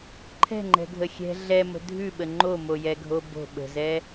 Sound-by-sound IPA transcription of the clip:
ǃʰɛ̤ŋ͡ǃɛ̤ɡʱə xʲɛ̤ ɮɛmə̤ dʱʉɓə ŋ͡ǃomojɛɡʱo bo̤ ɓə̤zɛ

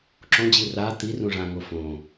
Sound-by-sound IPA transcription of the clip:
ǁõd͡ʑi ra t̪irũ ʐãŋo fõ

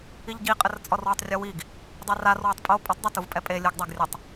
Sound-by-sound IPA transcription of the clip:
iʎɟiqʼɘr t͡sʼɔrwutˤrʲowiɡ | dˤɛrar wɘtˤpʼo pʼɘtˤdˤɐtuvpʼɛ pʼe lʲɨɡdˤɛɡrʲɘtˤ

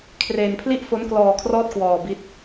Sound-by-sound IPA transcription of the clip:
kʰreː˧npʰli˥˩ʔ fo˦˥nklɔː˧kʰrɔː˦˥t̚ kwɔː˧bi˦˥t̚

